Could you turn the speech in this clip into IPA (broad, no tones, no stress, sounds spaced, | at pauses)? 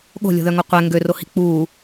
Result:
ɠ o̤ lʲ o̤ ð œ ŋ o qʷ ɛ ŋ ɡ ø r o h i̤ k͡p uː